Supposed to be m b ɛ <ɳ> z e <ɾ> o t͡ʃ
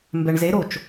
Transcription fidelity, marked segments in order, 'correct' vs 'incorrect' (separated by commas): correct, correct